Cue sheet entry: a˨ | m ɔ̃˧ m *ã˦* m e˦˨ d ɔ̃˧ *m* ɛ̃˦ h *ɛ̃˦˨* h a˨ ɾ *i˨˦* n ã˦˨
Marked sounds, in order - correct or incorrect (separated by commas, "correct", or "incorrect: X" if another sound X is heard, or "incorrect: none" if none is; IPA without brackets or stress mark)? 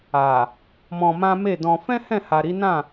correct, incorrect: f, correct, correct